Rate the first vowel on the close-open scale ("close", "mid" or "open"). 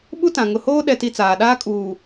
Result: close